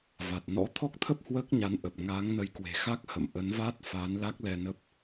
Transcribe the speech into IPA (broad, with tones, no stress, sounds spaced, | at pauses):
v a˨˩ t̚ n ɔ̰˧˥ t̪ʰ ɔ˦˥ k̚ t̪ʰ ə˦˥ p̚ h w əː˦˥ k̚ ɲ a˨˦ n ʔ ə˨˩ p̚ ŋ aː˨˦ ŋ n ə˨˦ j k w e̤˨˩ x a˦˥ k̚ h ə̰˧˨ m ʔ ə˨˦ n v aː˦˥ t̚ f aː˨˦ n l a˦˥ k̚ l ɛ˧ n ə˦˥ p̚